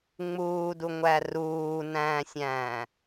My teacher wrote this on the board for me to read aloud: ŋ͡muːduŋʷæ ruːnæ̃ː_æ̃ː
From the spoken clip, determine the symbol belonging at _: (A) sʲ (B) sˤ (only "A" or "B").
A